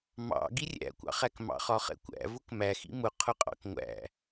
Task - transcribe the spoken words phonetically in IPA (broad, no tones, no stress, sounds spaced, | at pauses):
m ɑ̰ ɡ i rʲ æ̰ kʷ ɑ̰ χ æ k m ɑ̰ χ ɒ χ ɛ̰ kʷ æ̰ v ʊ k m æ x ḭ m ʊ qʰ ʊ qʼ ɑ̰ k ŋʷ æ̰